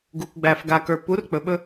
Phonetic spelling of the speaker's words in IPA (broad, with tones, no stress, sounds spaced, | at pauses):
ɡ u˨ kʷ ɡ͡b æ˨ f ɡ a˨ k ə˞˨ p u˨˦ r k͡p ɵ˨ ɓ ɵ˦